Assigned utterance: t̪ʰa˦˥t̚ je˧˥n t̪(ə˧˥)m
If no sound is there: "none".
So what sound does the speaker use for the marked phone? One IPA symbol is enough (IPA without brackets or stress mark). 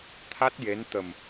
ə˨˩